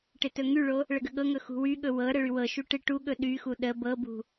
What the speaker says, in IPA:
ʈ ɪ t ɵ ŋ y ɭ o | ɭ ə ɡ ə ɠ ɤ ŋ ɵ x ṳ w y ɠ ɵ w ɤ ɾ ə ɭ y w ɤ ʃ u ʈ ɪ ʈ u ɠ ɵ ɗ y x u ɗ ə b ɤ b ṳ

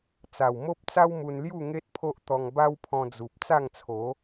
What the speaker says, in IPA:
t͡s a˨˩ w m o˦ p̚ t͡s a˦ w m u˧ n l j u˥˧ ŋ e˦ t̚ pʰ o˦ ʔ t̪ ɔ˧ ŋ b a˦ w pʰ ɔ̃˧ d͡z u˨ p̚ t͡s a˥˧ ŋ t͡sʰ o˨˦

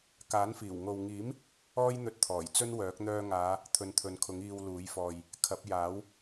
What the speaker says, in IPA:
k aː˨˥ n f iː˨˩ w ŋ o˨ w ŋ iː˨˥ m | ɔː˥ j n̪ ɵ˧ t̚ t̪ʰ ɔː˨˩ j t͡s ɵ˥ n w œː˨˥ k̚ n̪ œː˧ ŋ aː˨˧ | t̪ʰ ɵ˨˧ n t̪ʰ ɵ˨ n kʰ ʊ˨˥ ŋ iː˧ w l uː˨˥ j f ɔː˨ j | kʰ ɐ˨˥ p̚ j aː˨˥ w

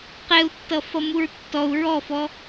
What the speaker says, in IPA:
q ɛ u̯ tː ʌ f ʌ m u ɹ tː ɔ u̯ ɹ ɔ f ɔ

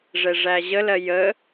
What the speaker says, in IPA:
ʐ ɛ ʐ æ ʑ ə l ɜ j ə

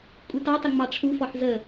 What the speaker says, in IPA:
kʷʼ i t ɑ tˤ ə ŋ͡m ɑ ʈ͡ʂʰ u f ɔ ħ z ə

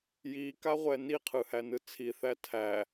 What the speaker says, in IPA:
j i k a ʁʷ ɛ n i qʰ ɯ h æ n ɯ t͡sʰ i θ æ tʰ æ

